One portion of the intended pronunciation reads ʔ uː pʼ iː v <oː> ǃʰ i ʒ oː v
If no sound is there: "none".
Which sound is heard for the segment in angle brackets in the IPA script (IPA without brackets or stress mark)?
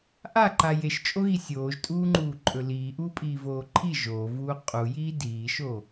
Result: oː